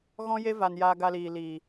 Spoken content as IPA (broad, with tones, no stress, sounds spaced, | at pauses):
ɣ ɔ̃˦ j e˦ v a˨ n j aː˧ ɡ a˧ l iː˨ l iː˨